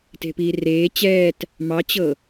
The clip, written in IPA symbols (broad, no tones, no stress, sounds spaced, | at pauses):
t e̤ p iː r eː t͡ɕ ɛː t | m ɑ t͡ɕ ɤ